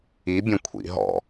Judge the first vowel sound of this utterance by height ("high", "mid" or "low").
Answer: high